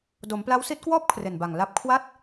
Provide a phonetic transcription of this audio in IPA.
d o˩˦ m p l a˦˥ w s i˦˥ t̚ k w ɔː˥˩ p̚ kʰ r e˨˩ n b a˨˩ ŋ l a˦˥ p̚ kʰ w a˥˩ t̚

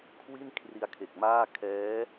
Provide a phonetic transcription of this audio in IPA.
kʰ w i˥˩ n kʰ r i˧ a̯ kʰ e˨˩ k̚ m aː˥˩ kʰ ɛː˦˥

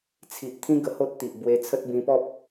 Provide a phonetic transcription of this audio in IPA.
t͡sʰ i˨ ʔ t̪ʰ ĩ˦ ɡ ə˧ h o˦ t̚ t̪ i˨ ʔ b w e˧ t͡sʰ ə˦ t̚ b ĩ˧ p ɔ˦ p̚

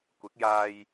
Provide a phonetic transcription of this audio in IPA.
kʷ ɪ˨˥ k̚ j aː˧ j

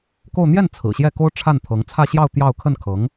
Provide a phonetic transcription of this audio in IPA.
k o˥˧ ʊ̯ n̪ j ɛ˥˩ n t͡sʰ ɹ̩˨˩ ɕ j ɛ˥˩ k o˥ ʊ̯ ʈ͡ʂʰ a˥˩ n t̪ʰ ɤ˧˥ ŋ t͡sʰ ä˥˧ ɕ j ɑ˥˧ ʊ̯ t̪ j ɑ˥˧ ʊ̯ kʰ ə˥˩ n kʰ ɤ˧˥ ŋ

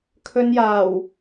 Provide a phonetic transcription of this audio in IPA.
kʰ ɵ˧ n j aː˨˩ w

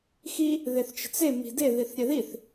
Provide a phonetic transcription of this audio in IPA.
x i | ð e θ t͡ʃ ə̤ t͡s e m i̤ d e ð i θ ɾʲ ɛ ð i θ

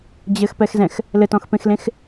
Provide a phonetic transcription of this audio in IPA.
d͡ʑ ɘ x p ɛ x z ɛ̃ x | l ɘ t ɔ̃ x p ẽ x l ẽ x

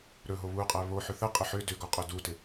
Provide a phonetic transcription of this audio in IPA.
ɾ ɵ ɦ o β u qʼ æ β o ħ ʏ θ ə qʼ ə ħ ʏ d ʏ ɡ ɔ qʼ ɵ d u t ɪ

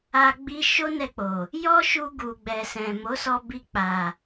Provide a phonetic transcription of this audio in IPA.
a˧ ɡ͡b i˧ ʃ o˦ n ɛ˧ k͡p o˨ | j ɔ˦ ʃ u˧ ɡ u˨ ɡ͡b ɛ˨ s ɛ̃˨ m o˨˦ s ɔ˧ b i˧ k͡p a˨

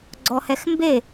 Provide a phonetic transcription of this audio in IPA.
ɡ͡ǀ ɔ h ɛ x m b e

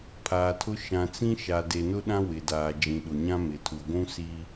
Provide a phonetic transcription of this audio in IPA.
pʰ aː˨ tʰ ʊ˦ ʃ ã˨ t͡s ĩ˦ ʃ a˨ d e˨ n ʊ˦ ɗ ã˦ w ɪ˨ d aː˨ d͡ʒ ĩ˨ ɗ ʊ˨ ɲ ã˦ m ɪ˨ tʰ u˨ ɡʷ ũ˦ s i˦

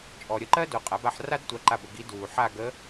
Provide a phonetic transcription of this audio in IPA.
t͡ʃʼ ɔ˨ ɾʲ ə˦˨ ǃ ɜ˥ d o˨ qʼ a˩˥ b a˦˨ ħ r a˥ d tʷ a˧˥ ǃ a˦˨ b ə˦˨ ɡ i˧˥ d uː˨ ħ a˦˨ ɡ ə˧˥

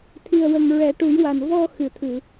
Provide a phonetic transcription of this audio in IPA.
t̪ʰ i˨˩ ə̯ w ə˨˩ ŋ ɹ ɛ˨˩˦ ʈ u˨˩˦ j w a˨˩ n v ɔ˧ x ɨ˨˩˨ t̪ʰ ɨ˨˩˨

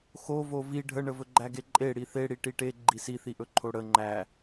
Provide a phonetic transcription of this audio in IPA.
x o v o v i ɖʱ ə ɳ ə v ɵ ɡ͡ǃ æ ɡ e ǃʼ e ɽ i θ e ɽ i ʈ i ʈ e ɡ͡ǃ i s i θ i ʔ ɵ ǃʰ o ɽ ə ŋ͡ǃ æ

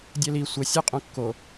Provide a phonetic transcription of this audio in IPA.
dʲ ɛ l i sʷ ə sʲ œ qʼ õ kː o

